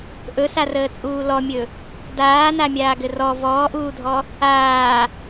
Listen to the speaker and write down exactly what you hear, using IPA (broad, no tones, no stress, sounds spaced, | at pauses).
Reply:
ʔ ɵ s a r əː t͡sʼ uː l ɔ mʲ ɵ | d aː n a mʲ aː ɡ ɘ r ɔ v ɔː ʔ uː dʱ ɔ | aː